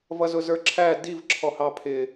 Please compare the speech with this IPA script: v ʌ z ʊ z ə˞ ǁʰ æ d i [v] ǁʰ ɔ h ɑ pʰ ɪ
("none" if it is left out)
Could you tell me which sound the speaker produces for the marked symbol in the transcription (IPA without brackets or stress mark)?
v